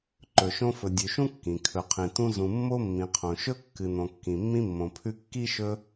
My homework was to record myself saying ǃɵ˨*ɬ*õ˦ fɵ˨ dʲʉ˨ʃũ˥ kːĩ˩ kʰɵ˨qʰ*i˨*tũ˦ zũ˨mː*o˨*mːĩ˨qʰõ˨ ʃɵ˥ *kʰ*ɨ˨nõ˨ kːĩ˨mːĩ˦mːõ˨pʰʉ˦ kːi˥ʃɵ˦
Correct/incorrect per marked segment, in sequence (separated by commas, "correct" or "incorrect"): incorrect, incorrect, incorrect, incorrect